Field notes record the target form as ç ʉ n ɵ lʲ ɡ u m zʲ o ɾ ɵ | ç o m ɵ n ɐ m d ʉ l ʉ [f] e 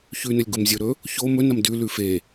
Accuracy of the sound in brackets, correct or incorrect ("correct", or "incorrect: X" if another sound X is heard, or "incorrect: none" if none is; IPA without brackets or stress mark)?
correct